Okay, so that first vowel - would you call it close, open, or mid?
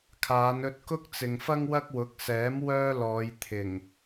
open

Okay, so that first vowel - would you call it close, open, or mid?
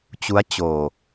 close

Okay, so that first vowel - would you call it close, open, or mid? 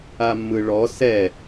open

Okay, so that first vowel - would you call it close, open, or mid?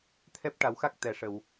mid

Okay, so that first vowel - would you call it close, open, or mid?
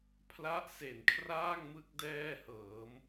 open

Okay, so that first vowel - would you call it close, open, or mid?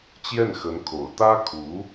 mid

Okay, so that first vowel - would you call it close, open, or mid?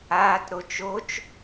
open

